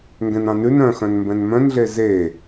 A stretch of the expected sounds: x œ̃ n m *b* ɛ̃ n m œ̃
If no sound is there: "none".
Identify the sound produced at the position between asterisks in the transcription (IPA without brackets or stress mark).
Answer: b